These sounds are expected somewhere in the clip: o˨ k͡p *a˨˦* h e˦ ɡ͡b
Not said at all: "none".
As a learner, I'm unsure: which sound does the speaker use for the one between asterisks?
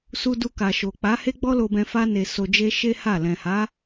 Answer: a˨˦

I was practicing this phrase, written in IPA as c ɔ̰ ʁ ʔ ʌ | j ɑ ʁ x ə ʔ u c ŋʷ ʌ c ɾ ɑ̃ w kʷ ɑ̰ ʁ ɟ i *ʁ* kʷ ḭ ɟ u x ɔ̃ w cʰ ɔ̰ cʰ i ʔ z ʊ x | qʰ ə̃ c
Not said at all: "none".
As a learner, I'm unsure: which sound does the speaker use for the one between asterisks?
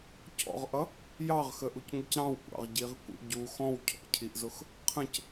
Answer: ʁ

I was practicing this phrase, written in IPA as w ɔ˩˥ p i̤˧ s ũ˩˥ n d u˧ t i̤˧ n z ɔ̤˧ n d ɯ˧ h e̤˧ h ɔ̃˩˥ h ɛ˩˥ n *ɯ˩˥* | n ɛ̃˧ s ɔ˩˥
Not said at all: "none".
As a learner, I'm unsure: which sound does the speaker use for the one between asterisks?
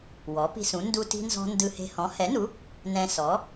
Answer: u˩˥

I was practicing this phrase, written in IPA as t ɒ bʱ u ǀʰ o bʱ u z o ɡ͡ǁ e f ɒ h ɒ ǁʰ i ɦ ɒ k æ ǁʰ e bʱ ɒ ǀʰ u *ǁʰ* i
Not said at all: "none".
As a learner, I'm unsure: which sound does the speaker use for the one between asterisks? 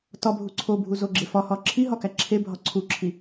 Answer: ǁʰ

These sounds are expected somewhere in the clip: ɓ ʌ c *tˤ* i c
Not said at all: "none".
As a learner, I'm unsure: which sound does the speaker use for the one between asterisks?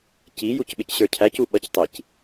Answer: tˤ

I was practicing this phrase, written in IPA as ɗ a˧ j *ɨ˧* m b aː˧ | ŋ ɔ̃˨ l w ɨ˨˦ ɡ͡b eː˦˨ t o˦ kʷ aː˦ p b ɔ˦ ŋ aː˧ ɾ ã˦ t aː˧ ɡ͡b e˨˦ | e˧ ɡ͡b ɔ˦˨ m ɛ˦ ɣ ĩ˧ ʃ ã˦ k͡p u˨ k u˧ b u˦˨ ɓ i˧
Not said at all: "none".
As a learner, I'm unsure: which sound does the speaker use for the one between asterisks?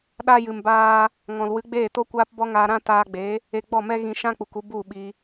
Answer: ɨ˨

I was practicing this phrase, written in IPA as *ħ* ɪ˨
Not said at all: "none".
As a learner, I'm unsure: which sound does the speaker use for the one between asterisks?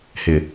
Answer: h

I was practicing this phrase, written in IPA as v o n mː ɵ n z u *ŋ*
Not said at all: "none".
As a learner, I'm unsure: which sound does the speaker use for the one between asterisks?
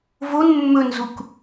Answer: k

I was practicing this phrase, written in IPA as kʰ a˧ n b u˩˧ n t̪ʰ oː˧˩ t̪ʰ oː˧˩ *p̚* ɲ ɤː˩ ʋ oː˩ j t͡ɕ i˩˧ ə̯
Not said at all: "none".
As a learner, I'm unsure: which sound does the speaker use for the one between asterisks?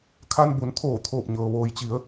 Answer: p̚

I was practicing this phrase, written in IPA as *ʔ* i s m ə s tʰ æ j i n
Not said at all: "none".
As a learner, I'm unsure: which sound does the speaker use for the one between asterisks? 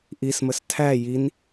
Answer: ʔ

